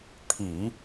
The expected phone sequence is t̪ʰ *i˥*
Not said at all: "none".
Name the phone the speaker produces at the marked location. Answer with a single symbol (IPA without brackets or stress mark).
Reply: i˨˩˦